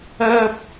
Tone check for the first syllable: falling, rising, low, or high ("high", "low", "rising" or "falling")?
high